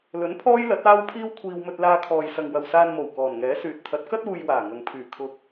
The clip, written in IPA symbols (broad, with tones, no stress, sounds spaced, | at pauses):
l ɵ˨˥ n pʰ ɔː˥ j l ɐ˨˥ t̚ aː˥ w pʰ iː˥ w kʷʰ iː˧ w m ɵ˧ t̚ l aː˧ kʰ ɔː˨ j s ɐ˨ ŋ w ɐ˨ w s aː˧ n m o˨˩ w k ɔː˨˩ n ŋ ɛː˨˥ s yː˨ t̚ t̪ʰ ɐ˨˥ t̚ k ɐ˥ t̚ uː˧ j w aː˨˩ ŋ ɐ˨ ŋ pʰ yː˨˩ kʰ ʊ˧ k̚